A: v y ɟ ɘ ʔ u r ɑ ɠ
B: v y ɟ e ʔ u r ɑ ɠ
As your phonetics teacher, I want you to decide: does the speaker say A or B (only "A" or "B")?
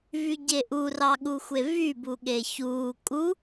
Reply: B